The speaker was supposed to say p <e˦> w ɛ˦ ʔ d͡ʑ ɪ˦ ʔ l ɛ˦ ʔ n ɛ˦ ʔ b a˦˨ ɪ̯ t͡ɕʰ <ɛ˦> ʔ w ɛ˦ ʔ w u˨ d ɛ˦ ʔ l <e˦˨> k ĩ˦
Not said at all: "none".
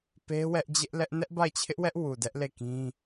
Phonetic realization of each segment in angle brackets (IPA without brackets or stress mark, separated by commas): e˦, ɪ˦, e˦˨